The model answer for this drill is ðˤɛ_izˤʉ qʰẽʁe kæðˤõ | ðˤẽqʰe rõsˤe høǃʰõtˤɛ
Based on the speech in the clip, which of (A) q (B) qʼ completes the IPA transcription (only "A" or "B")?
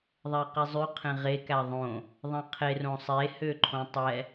A